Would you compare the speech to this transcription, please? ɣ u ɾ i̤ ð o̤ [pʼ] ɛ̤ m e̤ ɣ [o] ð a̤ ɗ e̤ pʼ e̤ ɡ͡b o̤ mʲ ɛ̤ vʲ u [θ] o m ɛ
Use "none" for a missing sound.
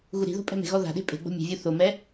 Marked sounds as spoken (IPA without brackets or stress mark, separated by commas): pʼ, ɔ, θ